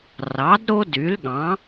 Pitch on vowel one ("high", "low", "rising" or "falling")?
rising